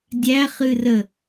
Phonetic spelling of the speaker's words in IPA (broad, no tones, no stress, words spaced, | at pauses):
dʲæχɨrə